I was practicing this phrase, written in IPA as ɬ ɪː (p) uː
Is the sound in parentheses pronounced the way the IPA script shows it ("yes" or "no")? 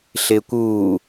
no